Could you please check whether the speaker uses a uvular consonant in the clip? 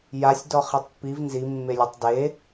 yes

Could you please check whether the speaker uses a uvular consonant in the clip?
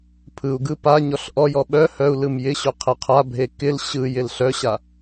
yes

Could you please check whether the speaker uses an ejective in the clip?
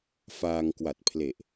no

